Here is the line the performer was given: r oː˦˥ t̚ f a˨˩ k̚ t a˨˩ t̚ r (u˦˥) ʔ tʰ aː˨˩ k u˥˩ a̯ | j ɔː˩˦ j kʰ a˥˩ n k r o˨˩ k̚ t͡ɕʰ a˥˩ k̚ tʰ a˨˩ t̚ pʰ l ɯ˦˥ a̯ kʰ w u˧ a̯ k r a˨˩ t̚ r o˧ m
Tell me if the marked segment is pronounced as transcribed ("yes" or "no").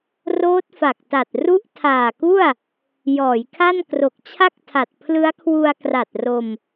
yes